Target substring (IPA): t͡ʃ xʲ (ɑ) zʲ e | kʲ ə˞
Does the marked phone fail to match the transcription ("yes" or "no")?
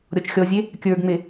yes